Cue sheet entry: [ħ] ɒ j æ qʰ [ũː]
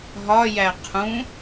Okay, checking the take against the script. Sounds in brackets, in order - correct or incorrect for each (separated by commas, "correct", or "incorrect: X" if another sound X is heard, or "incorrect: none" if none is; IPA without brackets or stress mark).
incorrect: ɦ, incorrect: ũ